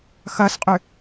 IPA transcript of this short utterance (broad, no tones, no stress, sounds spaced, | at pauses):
x ɐ s qʼ ʏ